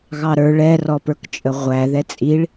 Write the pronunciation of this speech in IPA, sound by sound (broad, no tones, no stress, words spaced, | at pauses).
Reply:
ɣɑɾə˞ ɭɛrɔpə˞kt͡ʃʼə ʁʷæ ðɛt͡sʼiɭ